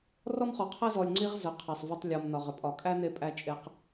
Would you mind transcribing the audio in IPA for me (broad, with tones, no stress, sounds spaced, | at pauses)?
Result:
r ɔ˦ m χ ɔ˨ qʰ æ˦ z ɔ˨ lʲ ŋ͡ǀ i˦ ʁ z ə˨ qʰ æ˨ sˤ v ɒ˦ tˤ lʲ ɔ˨ m n ɒ˨ ʁ ə˦ pʼ ɒ˨ kʼ æ˦ n e˧ pʼ æ˧ t͡ʃʼ e˦ q